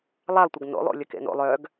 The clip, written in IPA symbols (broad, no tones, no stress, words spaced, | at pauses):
lˠalˠtʷəɡ no̰lˠo̰ lʲəkḛno̰lˠ œɡ